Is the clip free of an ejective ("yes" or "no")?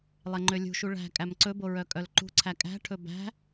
no